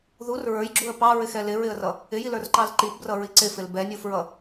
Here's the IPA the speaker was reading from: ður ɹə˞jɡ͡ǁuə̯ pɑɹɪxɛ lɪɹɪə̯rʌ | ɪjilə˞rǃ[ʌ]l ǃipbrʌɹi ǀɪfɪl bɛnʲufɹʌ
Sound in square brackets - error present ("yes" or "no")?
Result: yes